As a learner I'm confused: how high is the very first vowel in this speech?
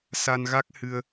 low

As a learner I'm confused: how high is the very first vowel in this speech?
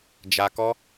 low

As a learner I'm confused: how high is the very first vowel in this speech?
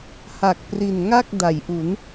low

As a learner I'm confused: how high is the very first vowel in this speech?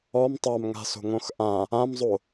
mid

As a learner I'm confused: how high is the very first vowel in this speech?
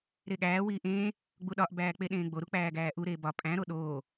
mid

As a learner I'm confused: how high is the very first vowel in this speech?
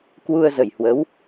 high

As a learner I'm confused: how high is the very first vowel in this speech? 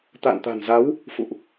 low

